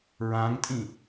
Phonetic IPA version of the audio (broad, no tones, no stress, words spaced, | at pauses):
ɹãŋtʼĩ